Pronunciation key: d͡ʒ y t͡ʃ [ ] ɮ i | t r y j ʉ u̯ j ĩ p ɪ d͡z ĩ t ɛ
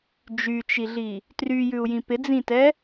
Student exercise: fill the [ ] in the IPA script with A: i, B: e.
A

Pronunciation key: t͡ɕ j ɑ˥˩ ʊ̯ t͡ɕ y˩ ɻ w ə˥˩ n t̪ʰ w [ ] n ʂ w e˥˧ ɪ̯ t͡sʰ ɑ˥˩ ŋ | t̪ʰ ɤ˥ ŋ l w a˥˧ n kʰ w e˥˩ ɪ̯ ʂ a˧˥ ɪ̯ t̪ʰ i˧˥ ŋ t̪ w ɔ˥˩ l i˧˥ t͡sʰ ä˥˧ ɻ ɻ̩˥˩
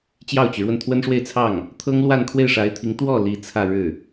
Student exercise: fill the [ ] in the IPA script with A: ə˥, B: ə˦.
A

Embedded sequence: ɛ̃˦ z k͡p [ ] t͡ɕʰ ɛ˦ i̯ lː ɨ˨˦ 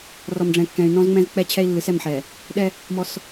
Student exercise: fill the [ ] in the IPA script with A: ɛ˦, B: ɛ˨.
A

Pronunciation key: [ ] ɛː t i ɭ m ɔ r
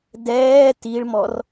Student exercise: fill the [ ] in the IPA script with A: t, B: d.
B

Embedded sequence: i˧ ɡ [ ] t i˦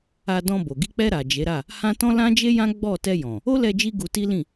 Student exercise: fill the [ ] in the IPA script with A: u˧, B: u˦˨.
A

